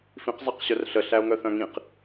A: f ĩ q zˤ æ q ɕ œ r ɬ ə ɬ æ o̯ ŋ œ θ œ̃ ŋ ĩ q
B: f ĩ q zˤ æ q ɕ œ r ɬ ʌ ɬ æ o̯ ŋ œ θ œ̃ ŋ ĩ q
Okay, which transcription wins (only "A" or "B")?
A